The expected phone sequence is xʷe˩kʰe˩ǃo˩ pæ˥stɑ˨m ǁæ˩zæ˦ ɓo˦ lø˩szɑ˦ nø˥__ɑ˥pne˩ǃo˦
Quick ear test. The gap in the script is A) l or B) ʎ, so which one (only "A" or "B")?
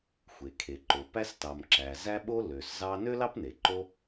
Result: A